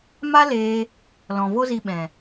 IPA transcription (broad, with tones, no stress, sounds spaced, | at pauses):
m a˦ l eː˧ | l ɔ̃˨ v o˦ z i˧ ɓ ɛ̃˨